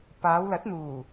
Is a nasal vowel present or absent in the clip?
absent